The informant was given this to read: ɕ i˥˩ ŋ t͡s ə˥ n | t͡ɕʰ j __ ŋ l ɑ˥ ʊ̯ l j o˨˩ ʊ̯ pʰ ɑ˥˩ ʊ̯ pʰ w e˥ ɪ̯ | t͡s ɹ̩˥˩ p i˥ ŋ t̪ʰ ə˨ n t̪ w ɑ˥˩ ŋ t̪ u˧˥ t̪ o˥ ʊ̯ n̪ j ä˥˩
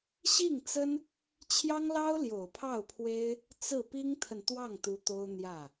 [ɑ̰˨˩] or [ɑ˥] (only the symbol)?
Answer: ɑ˥